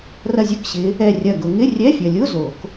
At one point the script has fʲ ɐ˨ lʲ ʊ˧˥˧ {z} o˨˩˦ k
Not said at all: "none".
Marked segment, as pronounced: z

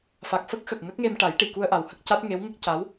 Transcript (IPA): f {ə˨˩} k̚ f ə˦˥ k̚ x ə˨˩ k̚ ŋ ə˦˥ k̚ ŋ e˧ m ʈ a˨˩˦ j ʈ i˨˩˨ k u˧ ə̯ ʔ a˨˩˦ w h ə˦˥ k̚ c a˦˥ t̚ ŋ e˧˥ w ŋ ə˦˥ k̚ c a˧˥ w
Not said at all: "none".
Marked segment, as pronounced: a˨˩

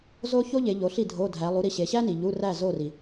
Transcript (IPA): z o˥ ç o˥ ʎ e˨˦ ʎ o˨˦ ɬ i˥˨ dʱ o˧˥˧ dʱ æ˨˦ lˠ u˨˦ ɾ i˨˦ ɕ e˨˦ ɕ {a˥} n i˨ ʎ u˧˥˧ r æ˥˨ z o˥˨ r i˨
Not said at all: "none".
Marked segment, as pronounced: æ˥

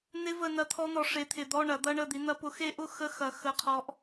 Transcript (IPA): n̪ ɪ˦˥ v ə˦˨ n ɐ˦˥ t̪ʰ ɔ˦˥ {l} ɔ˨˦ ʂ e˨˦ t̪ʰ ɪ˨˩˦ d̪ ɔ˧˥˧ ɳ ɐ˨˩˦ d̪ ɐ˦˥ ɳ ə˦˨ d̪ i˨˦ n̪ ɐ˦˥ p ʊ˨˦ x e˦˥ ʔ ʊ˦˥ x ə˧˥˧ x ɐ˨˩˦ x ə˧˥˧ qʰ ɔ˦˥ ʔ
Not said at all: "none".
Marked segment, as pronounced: n̪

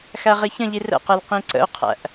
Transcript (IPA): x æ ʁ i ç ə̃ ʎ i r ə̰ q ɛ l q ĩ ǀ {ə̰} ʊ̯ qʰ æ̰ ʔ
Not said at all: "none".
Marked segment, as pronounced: ə̰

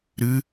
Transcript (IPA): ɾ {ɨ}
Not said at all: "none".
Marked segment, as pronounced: ɨ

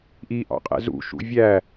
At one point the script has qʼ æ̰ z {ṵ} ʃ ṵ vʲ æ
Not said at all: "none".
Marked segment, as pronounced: ṵ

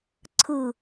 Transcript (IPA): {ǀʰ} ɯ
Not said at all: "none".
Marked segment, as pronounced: ǀʰ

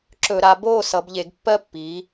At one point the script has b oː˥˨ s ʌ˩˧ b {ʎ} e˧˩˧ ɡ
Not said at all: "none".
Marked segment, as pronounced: ʎ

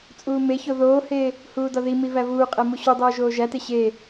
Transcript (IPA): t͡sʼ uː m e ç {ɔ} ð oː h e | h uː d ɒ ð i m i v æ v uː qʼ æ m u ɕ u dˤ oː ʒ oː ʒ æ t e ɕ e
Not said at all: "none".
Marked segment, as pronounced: o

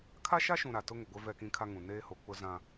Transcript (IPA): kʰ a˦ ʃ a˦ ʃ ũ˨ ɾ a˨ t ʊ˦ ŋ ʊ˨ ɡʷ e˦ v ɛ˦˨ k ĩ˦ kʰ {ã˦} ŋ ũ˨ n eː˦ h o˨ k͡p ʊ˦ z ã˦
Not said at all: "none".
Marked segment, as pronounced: a˦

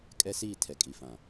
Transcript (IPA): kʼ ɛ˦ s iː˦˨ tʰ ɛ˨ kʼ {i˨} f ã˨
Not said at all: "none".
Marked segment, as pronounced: i˨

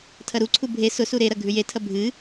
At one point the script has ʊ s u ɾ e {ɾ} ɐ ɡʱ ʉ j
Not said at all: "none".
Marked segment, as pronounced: ɾ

